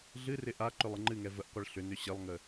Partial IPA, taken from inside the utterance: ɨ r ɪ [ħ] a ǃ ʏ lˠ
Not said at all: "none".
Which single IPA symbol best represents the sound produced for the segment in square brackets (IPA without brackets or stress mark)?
ʔ